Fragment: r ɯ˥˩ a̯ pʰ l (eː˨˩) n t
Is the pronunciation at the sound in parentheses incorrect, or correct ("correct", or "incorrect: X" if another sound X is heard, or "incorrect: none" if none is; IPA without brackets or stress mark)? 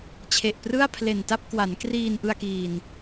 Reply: incorrect: e˨˩